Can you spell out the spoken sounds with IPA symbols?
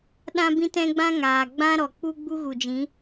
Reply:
ɗã˦bĩ˦tɛ̃˦ɡ͡bã˦ ŋaː˨ɡ͡bã˦ ɾɔ˨ k͡pu˧ ɡ͡bu˦ɣu˨d͡ʒĩ˨˦

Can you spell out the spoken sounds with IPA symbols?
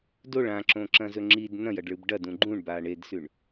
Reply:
doɭ ãǁõǁɐ̃zɵ ŋ͡ǁid nɐ̃jɐɖɭɨb ɖɐdũ ɡ͡ǃũɳba ɳedsʉɳ

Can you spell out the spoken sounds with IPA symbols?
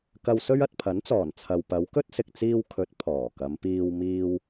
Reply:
kɐ˧wsɵ˥ɥ ɐ˨t̚pʰɐ˨˥nt͡sɔː˨˩n t͡sʰɐ˨w pɐ˨˧wkɵ˥t̚sɪ˨k̚t͡siː˧w kʰɵ˨˥t̚ pʰɔː˨˩kɐ˨˧mpiː˧w miː˧w

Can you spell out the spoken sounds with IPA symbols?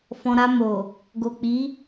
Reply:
fɔ̃˨ɾa˧ mo˨ | ɡo˨k͡pi˨˦

